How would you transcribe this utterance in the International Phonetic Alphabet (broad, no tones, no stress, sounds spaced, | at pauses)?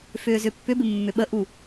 f ʏː z ʏ pː ʏ b ɪ mː ʏ ɓ ə ʔ u